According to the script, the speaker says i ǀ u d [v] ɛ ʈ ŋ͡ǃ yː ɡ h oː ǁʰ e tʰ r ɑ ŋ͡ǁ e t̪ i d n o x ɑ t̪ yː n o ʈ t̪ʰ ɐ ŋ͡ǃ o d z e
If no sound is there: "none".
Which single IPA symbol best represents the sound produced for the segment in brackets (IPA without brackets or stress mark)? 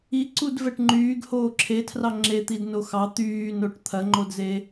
v